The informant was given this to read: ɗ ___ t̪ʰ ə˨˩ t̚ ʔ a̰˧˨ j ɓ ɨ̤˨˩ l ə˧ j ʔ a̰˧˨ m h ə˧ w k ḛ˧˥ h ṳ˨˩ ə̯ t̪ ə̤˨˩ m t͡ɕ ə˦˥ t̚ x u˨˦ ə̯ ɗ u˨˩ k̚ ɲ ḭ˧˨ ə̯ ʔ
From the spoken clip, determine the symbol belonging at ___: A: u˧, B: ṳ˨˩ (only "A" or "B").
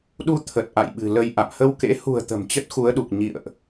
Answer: A